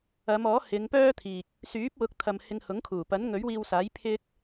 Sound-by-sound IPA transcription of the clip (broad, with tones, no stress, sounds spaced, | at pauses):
ɐ˨˧ m ɔː˨˥ h ɪ˨˧ ŋ p œː˥ t̪ʰ iː˨ k̚ | s yː˨˥ p̚ w ʊ˨˥ k̚ t̪ʰ ɐ˨ m h ɪ˧ ŋ h ʊ˨˥ ŋ kʰ uː˨˩ p ɐ˨˥ n ŋ ɵ˨˥ ɥ w iː˧ w s aː˨˥ j pʰ ɪ˥ k̚